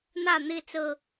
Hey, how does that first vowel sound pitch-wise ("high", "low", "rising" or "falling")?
falling